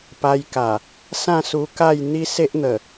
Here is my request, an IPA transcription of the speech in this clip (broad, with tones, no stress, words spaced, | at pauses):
pa˧jka˨˩ | sã˥˧su˧ka˥˧j n̪i˦se˦ʔn̪ə˨˩